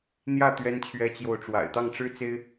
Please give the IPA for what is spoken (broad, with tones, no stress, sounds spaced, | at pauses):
n̪ j ä˥˩ t̪ ɥ ɛ˥ n t͡ɕʰ ɥ ɛ˥ t͡ɕ j o˥˩ ʊ̯ ʈ͡ʂ w a̰˨˩ ɪ̯ t̪ ɑ˥˩ ŋ ʈ͡ʂ ɻ̩˥ t͡s e˥ ɪ̯